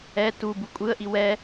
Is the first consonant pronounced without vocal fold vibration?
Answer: yes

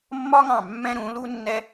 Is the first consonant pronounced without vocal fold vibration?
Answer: no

